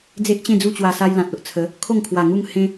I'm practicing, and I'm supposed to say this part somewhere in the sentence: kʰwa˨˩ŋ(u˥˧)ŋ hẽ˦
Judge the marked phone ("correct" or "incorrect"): correct